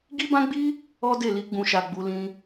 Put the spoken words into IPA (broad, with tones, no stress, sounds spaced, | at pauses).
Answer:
ɡ i˦ b ã˦ ɡ͡b i˦ | ɔ˦ d e˦˨ l i˧ ɡ͡b ũ˨ ʃ a˨ ɡ͡b u˨˦ l ĩ˧